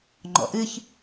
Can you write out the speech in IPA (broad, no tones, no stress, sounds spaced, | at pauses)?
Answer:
ŋ͡ǃ ɔ̰ ʔ ɨ ç